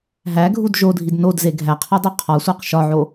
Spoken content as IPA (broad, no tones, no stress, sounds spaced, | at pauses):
ɦ æ ɡʱ u d ʒ o dʱ i d n o d z e ɡʱ æ qʰ ɒ dˤ o qʰ ɒ sʷ æ q ʃ ɒ ʕ o